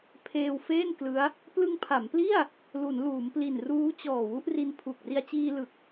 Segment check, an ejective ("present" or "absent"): absent